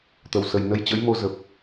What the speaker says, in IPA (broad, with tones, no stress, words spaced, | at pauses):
t̪ə˨˩wsə˨˩j nə˧jt͡ɕə̰˧˥j mo˧ zə˨˩p̚